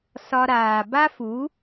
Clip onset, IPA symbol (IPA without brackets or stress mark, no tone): s